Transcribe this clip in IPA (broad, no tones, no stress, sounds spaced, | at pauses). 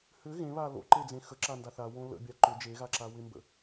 h ʏ ɣ ẽ β a l o̰ ǃ e d͡z ẽ x ə ǁ a n d a θ a w õ l ə̰ bʲ a ǃ ʏ d͡ʒ e ɣ a ǁ a w ɪ m b ə̰